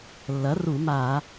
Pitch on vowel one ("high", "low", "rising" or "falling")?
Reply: rising